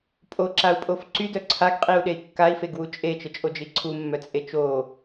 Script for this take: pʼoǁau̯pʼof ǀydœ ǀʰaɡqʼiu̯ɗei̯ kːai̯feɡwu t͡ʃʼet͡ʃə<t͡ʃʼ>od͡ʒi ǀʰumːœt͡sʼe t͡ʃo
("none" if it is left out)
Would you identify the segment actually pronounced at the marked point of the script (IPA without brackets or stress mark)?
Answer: t͡ʃʼ